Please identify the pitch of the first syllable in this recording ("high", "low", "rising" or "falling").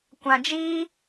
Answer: low